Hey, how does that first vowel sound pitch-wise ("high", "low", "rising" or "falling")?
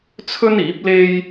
high